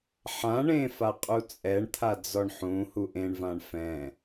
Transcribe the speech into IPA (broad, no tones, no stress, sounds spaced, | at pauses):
ħ ã ɳ ẽ f a qʼ u t͡sʼ ɛ ɳ t̪ʰ a d͡z ɔ ɳ ħ ũ h u ʔ ẽ ɳ v ã ɳ f ɛ̃